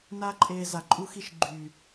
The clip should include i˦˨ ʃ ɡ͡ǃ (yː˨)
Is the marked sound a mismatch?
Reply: no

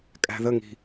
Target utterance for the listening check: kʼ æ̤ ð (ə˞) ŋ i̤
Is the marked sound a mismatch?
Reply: yes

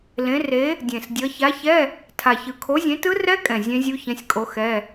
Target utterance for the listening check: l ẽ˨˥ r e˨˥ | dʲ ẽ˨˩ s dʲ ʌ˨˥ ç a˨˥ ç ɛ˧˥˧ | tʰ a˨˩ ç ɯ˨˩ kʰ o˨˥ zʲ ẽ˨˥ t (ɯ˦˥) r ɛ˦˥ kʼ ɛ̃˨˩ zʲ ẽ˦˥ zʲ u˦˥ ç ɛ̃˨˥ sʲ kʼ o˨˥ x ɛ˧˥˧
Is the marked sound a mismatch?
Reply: no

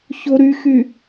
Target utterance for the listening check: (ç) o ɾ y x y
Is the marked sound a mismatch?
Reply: no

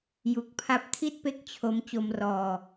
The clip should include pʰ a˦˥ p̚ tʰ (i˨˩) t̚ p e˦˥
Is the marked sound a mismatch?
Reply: yes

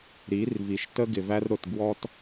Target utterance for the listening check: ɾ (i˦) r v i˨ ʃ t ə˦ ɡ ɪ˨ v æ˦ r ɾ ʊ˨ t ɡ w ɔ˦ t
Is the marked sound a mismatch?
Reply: yes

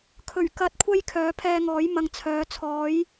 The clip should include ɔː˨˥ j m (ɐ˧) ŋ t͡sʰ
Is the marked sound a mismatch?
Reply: yes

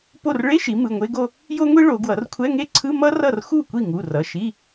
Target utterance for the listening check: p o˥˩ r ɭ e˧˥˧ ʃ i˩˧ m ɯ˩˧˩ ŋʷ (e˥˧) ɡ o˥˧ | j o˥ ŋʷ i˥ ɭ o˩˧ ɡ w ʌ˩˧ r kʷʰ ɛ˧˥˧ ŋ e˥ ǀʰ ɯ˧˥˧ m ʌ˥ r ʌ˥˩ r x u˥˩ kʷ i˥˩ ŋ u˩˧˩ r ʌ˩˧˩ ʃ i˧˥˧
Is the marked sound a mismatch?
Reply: yes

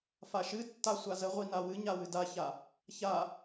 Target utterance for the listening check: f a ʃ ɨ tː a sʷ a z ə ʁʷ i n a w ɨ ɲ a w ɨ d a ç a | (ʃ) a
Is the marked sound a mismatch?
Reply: yes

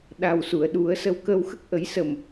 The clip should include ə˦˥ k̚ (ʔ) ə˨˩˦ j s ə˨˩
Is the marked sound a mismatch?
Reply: no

